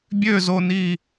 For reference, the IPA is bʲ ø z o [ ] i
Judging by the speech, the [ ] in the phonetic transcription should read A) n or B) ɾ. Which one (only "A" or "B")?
A